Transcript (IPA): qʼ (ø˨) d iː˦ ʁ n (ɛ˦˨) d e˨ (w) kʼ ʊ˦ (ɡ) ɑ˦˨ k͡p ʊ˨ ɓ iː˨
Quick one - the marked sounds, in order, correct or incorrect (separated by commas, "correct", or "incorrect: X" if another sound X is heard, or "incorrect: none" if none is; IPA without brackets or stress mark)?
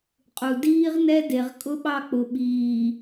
incorrect: u˨, incorrect: ɛ˦, incorrect: ʁ, incorrect: ɓ